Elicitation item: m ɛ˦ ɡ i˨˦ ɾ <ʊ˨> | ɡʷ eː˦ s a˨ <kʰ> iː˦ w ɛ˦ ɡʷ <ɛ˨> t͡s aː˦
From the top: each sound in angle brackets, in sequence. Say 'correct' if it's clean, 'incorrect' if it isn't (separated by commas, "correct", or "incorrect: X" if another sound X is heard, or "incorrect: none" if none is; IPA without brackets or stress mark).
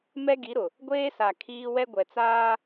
correct, correct, correct